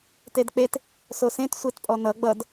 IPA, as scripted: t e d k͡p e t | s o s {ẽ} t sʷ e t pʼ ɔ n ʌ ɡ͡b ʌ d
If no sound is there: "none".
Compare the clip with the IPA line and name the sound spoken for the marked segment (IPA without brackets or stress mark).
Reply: ẽ